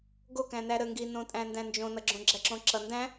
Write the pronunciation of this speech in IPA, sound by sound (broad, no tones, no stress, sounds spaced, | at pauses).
ɡ o k æ̃ n æ ɾ ə ŋ ɡ i n õ tʼ æ̃ n d æ̃ n d͡ʒ õ n ʌ ɡ͡ǁ õ ɡ͡ǁ æ ǁ õ ǁ ʌ n d æ̃